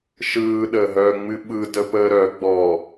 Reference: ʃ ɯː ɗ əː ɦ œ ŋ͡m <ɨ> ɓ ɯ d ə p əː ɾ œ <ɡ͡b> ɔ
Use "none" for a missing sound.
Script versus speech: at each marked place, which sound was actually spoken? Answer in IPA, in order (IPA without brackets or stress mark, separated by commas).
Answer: ɨ, ɡ͡b